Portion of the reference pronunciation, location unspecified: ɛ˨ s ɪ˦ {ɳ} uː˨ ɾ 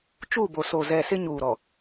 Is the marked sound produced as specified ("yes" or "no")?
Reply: no